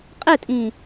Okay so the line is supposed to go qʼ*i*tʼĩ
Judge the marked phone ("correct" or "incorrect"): incorrect